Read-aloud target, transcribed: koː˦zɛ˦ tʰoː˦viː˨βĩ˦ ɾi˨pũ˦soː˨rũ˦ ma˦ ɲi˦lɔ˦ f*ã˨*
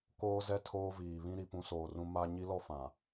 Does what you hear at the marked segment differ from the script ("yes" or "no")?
no